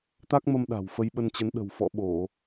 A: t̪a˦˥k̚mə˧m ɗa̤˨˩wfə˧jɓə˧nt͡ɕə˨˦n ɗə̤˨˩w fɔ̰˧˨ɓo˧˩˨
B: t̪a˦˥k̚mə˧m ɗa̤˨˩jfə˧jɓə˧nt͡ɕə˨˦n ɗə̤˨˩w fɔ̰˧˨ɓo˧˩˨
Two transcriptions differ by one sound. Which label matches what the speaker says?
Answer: A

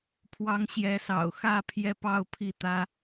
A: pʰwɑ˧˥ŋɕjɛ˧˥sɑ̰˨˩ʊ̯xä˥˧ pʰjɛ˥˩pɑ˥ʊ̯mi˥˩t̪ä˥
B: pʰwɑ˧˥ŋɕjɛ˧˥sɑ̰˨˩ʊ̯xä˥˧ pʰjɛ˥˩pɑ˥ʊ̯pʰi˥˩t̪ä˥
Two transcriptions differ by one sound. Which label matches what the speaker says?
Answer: B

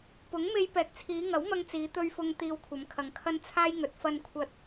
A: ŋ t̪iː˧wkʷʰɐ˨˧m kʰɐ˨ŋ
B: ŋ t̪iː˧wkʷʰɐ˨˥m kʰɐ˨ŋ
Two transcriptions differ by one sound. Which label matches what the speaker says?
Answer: A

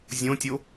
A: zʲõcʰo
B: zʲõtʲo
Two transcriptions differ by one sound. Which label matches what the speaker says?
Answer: B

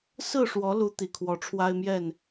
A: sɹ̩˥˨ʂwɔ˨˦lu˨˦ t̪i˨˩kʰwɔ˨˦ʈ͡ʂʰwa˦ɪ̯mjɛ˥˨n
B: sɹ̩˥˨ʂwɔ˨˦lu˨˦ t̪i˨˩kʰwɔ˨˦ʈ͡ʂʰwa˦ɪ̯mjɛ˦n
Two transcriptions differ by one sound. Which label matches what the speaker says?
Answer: A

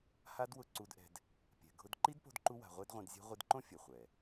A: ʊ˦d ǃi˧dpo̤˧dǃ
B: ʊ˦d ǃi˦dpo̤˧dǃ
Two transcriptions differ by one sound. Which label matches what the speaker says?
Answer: B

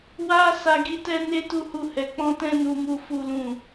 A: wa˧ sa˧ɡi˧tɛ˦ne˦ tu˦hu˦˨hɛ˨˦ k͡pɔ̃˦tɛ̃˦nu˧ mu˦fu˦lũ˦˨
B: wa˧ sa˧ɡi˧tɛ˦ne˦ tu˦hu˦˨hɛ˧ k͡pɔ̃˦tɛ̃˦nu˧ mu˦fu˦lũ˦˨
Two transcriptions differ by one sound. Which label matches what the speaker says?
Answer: A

